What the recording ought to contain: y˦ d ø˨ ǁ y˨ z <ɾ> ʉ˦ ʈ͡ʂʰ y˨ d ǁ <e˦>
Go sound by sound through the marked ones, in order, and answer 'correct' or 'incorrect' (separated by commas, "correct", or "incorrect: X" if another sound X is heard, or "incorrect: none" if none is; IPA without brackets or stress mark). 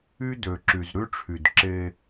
correct, correct